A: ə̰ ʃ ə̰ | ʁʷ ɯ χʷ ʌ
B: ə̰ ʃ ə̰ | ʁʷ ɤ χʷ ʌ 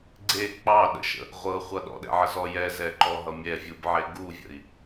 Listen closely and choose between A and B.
B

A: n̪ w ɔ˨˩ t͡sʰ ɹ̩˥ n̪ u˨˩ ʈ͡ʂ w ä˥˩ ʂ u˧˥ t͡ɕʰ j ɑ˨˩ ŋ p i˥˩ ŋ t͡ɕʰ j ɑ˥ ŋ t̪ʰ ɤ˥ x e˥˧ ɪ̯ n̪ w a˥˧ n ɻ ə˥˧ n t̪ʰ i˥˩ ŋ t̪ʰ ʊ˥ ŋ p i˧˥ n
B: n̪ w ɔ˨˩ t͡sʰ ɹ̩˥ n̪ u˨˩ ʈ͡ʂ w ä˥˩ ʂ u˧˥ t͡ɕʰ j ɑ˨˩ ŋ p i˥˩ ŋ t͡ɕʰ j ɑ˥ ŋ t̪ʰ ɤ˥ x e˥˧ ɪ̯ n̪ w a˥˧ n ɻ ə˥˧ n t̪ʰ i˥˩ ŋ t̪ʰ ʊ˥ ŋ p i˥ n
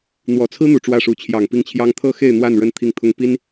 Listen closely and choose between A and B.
B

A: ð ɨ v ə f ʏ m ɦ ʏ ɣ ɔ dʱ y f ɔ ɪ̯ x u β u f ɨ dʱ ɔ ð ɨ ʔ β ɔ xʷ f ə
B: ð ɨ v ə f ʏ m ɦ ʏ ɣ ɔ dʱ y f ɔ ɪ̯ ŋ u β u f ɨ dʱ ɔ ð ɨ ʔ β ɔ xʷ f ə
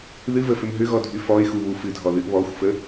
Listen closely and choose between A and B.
A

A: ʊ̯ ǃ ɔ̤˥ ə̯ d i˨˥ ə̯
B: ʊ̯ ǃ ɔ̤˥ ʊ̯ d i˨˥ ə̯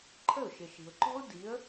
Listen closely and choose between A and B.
B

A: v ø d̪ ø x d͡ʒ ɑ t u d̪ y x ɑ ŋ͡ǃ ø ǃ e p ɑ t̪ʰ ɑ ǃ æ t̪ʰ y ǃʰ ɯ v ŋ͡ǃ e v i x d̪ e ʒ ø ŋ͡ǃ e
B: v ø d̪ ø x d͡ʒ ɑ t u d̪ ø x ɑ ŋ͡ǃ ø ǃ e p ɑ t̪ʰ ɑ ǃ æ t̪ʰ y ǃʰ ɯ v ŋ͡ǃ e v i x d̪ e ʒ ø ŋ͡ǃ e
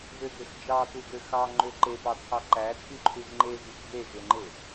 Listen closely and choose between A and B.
B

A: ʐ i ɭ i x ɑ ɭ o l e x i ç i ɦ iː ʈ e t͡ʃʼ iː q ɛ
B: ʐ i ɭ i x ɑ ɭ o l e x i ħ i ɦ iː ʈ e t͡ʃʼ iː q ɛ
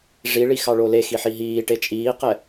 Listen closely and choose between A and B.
B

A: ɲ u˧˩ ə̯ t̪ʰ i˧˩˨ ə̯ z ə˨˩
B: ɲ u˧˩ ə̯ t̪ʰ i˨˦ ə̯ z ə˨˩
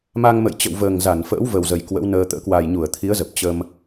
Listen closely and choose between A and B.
B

